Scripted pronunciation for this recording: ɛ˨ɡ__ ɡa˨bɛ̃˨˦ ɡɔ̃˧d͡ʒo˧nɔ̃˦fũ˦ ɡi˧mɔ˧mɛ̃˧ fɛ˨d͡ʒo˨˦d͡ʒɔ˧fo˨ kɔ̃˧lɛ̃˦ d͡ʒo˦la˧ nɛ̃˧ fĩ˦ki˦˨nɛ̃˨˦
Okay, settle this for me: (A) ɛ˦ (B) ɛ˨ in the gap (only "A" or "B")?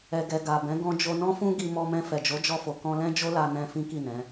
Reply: B